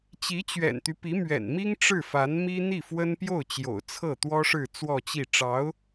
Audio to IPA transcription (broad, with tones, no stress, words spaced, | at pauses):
t͡ɕi˧˥t͡ɕɥɛ̰˨˩nt̪y˦pi˧˥ mɥɛ̰˨˩nmi˥ŋ ʈ͡ʂɻ̩˥˩fa˧˥nmi˥ n̪i˥˩fwə˥npjo˥˩ʊ̯ t͡ɕjo̰˨˩ʊ̯t͡sʰɤ˥˩t̪wɔ˥ʂɻ̩˥˧ t͡swɔ˥˧t͡ɕi˥˩ ʈ͡ʂɑ˧˥ʊ̯